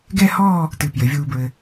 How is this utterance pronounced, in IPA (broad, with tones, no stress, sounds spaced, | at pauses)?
ɡ ɛ˥˧ h ɔː˥˧ | t ɨ˧˩ p j ɘ˩˧ vʲ uː˧ b ɹ ɘ˧